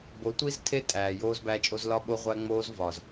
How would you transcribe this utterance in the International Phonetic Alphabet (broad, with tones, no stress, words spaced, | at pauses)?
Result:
bo˨˦tʷi˦z tʰe˦ tʼæː˨ joː˧zbæ˧t͡ʃʼo˧z lɒ˦ɓo˦ ʁʷæ˧ŋ͡moː˧zvɒ˨z